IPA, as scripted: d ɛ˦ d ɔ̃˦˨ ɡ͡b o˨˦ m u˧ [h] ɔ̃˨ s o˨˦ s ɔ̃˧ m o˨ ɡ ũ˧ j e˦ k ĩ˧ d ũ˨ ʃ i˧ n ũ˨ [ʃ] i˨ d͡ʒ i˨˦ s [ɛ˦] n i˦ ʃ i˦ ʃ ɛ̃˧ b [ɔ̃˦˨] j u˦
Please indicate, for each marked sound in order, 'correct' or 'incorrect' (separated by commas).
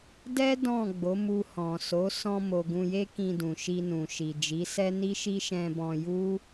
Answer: correct, correct, correct, incorrect